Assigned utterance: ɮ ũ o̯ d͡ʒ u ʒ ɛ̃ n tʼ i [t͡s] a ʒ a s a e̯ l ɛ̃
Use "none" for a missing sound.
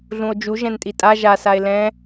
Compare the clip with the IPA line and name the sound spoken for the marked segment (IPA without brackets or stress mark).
tʼ